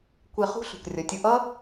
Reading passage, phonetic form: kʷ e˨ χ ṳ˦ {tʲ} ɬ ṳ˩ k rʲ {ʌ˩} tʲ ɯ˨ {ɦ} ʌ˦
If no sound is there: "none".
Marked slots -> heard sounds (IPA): none, ʌ˩, ʔ

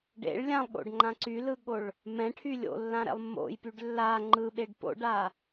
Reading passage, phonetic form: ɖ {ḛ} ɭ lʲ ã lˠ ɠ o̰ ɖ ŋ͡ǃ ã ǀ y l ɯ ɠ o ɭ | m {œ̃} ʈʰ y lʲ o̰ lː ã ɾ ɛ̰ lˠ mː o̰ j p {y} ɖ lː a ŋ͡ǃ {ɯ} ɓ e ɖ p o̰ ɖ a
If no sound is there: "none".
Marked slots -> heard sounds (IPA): ḛ, ɛ̃, y, ɯ

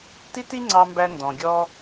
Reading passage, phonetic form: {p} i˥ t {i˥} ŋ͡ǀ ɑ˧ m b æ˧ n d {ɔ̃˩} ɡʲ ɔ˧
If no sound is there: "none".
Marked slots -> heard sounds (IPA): t, i˥, ɔ̃˩

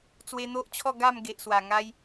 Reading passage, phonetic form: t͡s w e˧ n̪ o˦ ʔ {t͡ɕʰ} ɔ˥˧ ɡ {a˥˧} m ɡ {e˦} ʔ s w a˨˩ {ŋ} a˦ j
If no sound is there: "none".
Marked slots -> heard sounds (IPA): t͡ɕʰ, a˥˧, e˨, ŋ

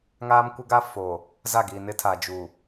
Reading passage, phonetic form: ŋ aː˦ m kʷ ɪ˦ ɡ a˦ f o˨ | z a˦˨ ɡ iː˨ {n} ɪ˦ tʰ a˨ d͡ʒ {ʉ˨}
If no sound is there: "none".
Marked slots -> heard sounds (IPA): n, u˨

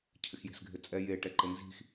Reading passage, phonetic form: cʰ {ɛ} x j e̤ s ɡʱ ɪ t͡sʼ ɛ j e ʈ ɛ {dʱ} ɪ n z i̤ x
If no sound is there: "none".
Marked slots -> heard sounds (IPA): ɪ, ǃ

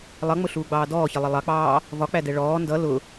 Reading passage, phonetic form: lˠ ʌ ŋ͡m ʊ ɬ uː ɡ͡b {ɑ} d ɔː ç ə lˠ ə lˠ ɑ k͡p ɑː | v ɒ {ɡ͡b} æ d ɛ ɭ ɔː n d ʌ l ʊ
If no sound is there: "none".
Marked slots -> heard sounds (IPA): ɑː, k͡p

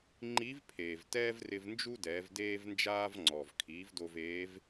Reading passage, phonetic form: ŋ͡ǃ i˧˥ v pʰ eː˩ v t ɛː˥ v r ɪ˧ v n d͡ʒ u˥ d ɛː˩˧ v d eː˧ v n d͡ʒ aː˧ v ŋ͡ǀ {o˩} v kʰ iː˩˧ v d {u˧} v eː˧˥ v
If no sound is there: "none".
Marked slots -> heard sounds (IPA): ɔ˩, o˧

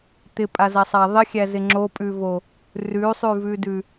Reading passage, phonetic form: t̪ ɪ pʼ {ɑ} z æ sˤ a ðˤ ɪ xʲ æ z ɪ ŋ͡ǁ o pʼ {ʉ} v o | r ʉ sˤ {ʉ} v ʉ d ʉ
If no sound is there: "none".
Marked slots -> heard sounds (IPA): a, ʉ, ʉ

